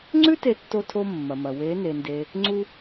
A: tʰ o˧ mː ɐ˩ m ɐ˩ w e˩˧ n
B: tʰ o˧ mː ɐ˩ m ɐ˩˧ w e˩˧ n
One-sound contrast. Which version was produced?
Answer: A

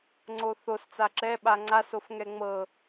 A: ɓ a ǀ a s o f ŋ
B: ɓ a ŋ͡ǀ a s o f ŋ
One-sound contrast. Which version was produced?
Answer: B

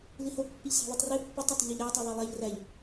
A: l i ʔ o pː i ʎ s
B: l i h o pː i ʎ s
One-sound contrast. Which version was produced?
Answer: B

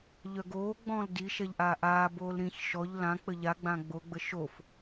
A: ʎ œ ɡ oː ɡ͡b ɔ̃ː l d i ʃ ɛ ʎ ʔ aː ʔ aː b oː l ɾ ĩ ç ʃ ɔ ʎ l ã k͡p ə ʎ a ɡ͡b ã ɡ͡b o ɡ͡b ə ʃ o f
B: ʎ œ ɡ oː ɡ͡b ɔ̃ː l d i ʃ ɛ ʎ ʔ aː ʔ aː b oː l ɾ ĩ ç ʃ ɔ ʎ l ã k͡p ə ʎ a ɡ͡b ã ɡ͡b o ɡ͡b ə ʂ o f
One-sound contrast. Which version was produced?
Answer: A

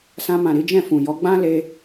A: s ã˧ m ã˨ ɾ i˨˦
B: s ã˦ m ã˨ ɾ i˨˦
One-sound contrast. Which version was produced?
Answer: A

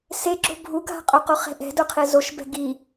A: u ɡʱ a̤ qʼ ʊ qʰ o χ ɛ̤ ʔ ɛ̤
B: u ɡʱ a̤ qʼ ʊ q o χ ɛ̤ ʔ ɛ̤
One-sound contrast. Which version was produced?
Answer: B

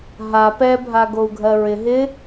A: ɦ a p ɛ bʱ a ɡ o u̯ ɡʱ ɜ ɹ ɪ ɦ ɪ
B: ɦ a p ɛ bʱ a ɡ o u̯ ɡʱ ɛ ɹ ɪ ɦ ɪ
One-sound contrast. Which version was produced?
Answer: A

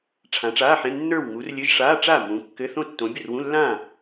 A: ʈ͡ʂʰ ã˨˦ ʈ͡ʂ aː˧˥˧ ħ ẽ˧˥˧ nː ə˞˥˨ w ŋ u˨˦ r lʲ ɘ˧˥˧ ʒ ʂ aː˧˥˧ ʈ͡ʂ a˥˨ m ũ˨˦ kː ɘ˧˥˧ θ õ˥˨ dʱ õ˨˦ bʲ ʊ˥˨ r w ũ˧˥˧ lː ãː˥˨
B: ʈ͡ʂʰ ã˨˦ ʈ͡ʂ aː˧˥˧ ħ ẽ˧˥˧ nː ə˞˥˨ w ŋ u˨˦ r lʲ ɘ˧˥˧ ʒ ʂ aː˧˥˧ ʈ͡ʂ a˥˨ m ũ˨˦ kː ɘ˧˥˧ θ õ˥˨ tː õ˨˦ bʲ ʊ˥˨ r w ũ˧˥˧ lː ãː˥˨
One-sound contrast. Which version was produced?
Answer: B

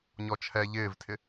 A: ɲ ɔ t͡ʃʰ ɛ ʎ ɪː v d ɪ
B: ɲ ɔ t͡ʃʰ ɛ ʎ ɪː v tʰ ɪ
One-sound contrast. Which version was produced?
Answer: B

